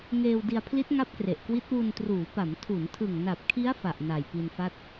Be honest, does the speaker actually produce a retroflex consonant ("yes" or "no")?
no